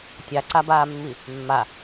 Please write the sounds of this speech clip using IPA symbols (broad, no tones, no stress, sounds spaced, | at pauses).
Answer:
tʲ a ǀ a b aː mː i | mː a